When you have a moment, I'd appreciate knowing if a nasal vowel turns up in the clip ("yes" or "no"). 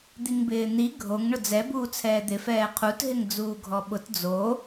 no